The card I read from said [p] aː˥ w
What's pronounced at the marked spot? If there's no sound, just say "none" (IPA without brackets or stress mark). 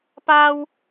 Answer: p